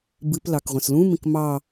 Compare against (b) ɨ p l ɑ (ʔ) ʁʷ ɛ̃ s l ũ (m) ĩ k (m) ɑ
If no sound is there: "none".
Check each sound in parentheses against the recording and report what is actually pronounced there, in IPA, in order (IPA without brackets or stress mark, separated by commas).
b, k, m, m